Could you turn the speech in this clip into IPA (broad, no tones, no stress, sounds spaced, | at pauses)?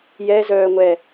j ɛ z œː ŋʷ ɛ